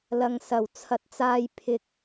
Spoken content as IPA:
lɐ˨ŋsɐ˨˩w t͡sʰɐ˨˥t̚t͡saː˧j pʰɪ˧k̚

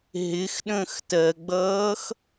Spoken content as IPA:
ɦɪxɗə̃ːx tɜɡ͡bʌːx

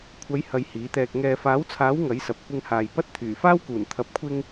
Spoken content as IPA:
kʷʰɐ˨˧j hɐ˧jhiː˨˥t̪ɛː˧k̚ ŋɛː˨faː˨˥wt͡sʰaː˨˥w ŋɐ˨˥jsɐ˨p̚ kʷɪ˧ŋhaː˨jpɐ˥t̚ t̪ʰyː˨˩faː˥wkuː˨˩n t̪ʰɐ˨p̚kʷʰɪ˧ŋ

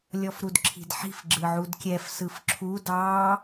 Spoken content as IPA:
lʲɔfɾudǁʰi̤dħi̤f ɡ͡ǁɯʕudkʲɛf sɯfǁʰu dɑ

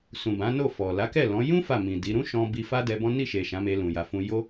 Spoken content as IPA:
sũ˨bã˨˦no˦˨ fɔ˨ la˨˦kɛ˦˨ lɔ̃˨˦ jũ˦ fa˦˨mĩ˨di˨˦ ɾũ˦ʃɔ̃˧ bi˧ fa˦ dɛ˧bɔ̃˦ ni˦˨ ʃe˨ ʃã˨˦me˧lũ˨ ja˨fũ˧ jo˦

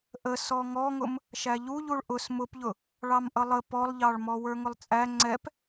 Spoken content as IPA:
ʔə sɔŋɔŋʊm | ʃæʎuʎuɭ ʔʊs mʊpʎʊ | ɭɑmʔʌlˠə pɔlˠʎɑɭmɔ wə˞ŋʊlˠt͡sʼæ ŋ͡ǀɛp

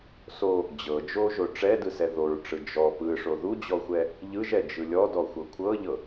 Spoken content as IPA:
so | d͡ʑɤ d͡ʒoʒo ʈ͡ʂɛdɯsɛ ðoɹʈ͡ʂɯ d͡ʒɔ pɯʂo ðud͡ʑɔxʷɛ | ʎɯʒɛd͡ʒɯ lʲɔdɔxʷɤ kʷʰɤʎɤ

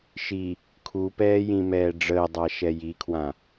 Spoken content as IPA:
ʃi | kʰupɛːjĩmɛː ɖ͡ʐəːdˤaʃɛ jikʰwã

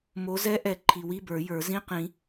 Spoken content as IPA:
mo˨˦zɛ˦˥ʔɛ˨ ǃʰi˨wi˧˥˧bə˞˨˩˦jə˞˨˩˦ zĩ˧˥˧qĩ˨˩˦

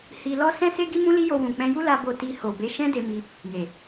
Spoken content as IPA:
hi˧lɔ˦ sɛ̃˦se˦ ɡi˦mũ˦li˦jo˧ wũ˨k͡pɛ̃˧ju˦ la˦bo˦˨ ti˧ ho˨be˨˦ ʃɛ̃˦de˧mi˧ | je˨

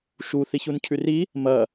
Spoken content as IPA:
ʃu θiçuncʰʉri | mɐ

